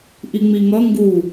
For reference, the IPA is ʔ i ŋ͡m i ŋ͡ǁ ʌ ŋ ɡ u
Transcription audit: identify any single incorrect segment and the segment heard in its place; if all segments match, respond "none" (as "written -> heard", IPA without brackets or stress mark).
ŋ͡ǁ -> ŋ